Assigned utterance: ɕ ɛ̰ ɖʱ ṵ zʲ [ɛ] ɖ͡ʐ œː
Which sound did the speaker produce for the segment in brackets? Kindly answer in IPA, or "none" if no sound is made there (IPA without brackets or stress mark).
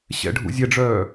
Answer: ɛ